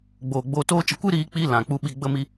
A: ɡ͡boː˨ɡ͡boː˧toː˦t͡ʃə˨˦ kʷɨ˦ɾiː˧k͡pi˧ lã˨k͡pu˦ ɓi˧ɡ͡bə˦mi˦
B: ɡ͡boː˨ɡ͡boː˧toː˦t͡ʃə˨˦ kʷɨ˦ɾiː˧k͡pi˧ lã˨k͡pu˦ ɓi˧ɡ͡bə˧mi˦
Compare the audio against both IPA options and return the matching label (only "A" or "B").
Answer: A